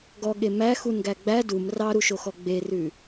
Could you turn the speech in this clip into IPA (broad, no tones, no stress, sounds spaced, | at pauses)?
ɡ ɔ ɠ e m æ x u n ɡ æ ɡ͡b æ d u m r ɑ ɾ u ʃ o x ɔ ɡ͡b e r ʉ